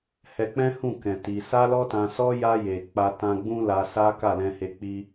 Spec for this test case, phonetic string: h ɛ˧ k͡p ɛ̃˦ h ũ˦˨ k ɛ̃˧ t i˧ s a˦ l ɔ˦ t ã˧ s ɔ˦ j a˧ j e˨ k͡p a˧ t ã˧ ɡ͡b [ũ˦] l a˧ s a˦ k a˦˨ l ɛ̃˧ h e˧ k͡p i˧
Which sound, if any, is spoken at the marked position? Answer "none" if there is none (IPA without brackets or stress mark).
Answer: ũ˦